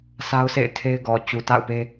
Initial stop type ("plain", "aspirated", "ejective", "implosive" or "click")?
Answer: aspirated